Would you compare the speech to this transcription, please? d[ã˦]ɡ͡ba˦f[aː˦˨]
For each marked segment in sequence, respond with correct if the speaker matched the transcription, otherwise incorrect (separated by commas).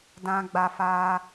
correct, incorrect